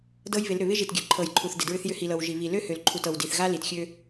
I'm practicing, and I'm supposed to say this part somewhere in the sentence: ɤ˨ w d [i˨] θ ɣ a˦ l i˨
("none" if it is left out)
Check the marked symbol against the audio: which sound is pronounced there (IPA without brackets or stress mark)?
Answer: i˨